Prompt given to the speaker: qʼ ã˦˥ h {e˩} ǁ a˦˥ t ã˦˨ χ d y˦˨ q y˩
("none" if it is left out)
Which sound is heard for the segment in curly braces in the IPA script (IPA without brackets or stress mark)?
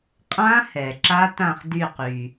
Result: ɛ˩